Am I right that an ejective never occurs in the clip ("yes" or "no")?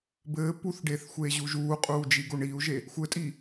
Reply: no